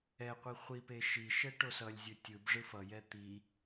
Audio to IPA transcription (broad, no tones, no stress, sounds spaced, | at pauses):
ɛ qʷ i χʷ i p e ʃ i ʃ ɛ ʈ o s ʌ lʲ zʲ u tʲ ɯ b ʐ ɯ f ʌ j ɛ t̪ i